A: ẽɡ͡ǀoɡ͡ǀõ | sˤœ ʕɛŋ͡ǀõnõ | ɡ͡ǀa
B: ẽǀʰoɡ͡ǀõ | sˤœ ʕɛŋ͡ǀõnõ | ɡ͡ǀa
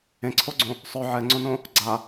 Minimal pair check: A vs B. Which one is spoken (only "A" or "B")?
B